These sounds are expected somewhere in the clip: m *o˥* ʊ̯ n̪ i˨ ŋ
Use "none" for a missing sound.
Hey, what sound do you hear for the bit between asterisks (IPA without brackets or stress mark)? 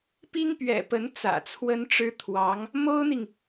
o˥